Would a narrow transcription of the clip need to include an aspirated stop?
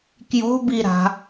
no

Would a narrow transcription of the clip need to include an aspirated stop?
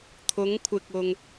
yes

